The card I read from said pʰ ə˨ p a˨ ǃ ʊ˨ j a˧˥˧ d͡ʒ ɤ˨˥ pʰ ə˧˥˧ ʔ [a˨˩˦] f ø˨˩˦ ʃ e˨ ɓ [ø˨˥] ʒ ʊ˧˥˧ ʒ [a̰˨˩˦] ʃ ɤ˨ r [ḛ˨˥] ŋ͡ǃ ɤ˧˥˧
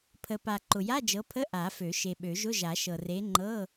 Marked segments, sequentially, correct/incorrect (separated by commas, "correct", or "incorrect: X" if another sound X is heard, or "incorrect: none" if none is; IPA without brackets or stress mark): correct, incorrect: ø˨˩˦, incorrect: a˨˩˦, incorrect: e˨˥